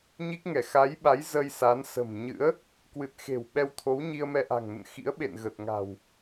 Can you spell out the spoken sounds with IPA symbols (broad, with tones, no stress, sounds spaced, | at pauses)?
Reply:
ɲ i˦˥ k̚ ŋ ɛ˧˩ x a˨˦ j ɓ a˨˦ j z ə˧ j s a˨˦ n s ə̤˨˩ m ɲ ɨ̰˧˥ ə̯ | k w ɨ˨˩ t̚ x e̤˨˩ w ɓ ɛ˧ w t̪ʰ o˨˦ w ɲ i˧ ə̯ m ɛ˧ ʔ a̤˨˩ ŋ n ə̰˧˨ n x ḭ˧˥ ə̯ ɓ ḛ˧˨ n ɣ ə˨˩ t̚ ŋ a̤˨˩ w